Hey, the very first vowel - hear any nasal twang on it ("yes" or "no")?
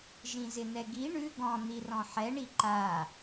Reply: yes